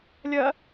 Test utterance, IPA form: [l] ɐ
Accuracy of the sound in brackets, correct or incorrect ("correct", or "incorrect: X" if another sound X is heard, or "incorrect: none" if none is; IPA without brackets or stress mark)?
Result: incorrect: lʲ